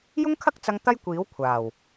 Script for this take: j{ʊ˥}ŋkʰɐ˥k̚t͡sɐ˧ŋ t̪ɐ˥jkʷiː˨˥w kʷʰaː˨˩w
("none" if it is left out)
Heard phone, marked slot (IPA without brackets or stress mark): ʊ˥